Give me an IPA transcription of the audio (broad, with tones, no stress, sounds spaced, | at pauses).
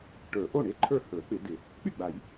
ʈ ə˞˨˩˦ ʔ o˥˩ ɳ e˥˩ ǃʰ ə˞˥˩ h ə˞˨˩˦ k͡p ɪ˨˩˦ d ɪ˨˩˦ | k͡p y˥˩ ɡ͡b a˨˩˦ j